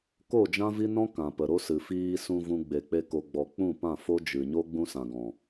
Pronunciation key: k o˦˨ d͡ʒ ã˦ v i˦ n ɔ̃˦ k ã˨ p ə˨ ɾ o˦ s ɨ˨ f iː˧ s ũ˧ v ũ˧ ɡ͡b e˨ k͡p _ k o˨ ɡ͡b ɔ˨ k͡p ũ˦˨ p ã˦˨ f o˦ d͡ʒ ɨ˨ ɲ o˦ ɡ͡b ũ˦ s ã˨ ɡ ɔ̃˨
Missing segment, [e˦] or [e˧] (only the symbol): e˧